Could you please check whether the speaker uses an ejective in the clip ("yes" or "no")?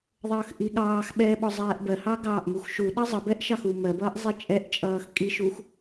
yes